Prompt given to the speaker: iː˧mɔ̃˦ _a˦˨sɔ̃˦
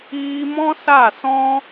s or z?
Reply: s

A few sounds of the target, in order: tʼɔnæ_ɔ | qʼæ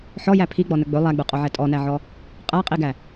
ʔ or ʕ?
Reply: ʕ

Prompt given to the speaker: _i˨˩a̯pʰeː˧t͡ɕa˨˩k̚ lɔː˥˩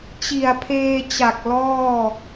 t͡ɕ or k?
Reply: t͡ɕ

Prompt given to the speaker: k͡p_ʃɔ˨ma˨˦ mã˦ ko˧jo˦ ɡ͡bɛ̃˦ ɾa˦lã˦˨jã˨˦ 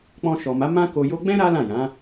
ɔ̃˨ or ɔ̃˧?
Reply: ɔ̃˧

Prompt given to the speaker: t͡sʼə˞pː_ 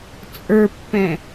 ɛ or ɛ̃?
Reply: ɛ̃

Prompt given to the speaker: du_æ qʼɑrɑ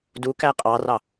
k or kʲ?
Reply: k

